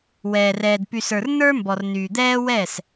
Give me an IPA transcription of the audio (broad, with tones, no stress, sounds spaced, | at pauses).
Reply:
w ɛː˨ r ɛː˨ d p y˨ s ə˞˨ r n ə˞˦ m b ɔ˨ r n yː˨ d̪ ɛː˦ w ɛ˦˨ s